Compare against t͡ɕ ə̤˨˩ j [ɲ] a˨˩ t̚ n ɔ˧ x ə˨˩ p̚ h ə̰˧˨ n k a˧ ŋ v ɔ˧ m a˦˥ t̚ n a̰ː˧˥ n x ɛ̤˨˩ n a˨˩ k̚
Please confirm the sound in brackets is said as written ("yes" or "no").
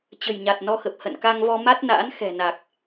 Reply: yes